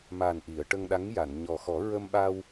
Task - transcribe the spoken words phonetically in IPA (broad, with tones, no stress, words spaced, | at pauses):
ma˨˩n ʔi˨˩˨ə̯ʈə˧ŋɗa˧˥ŋja˨˩˨n ɲɔ˨˩xɔ˨˩˦ ɹə˧mɓa˧w